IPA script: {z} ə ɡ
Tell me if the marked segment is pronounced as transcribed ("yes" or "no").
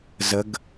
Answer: yes